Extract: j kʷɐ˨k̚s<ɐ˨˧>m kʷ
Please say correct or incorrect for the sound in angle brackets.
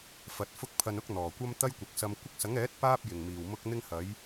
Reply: incorrect